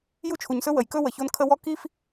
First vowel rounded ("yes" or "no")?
yes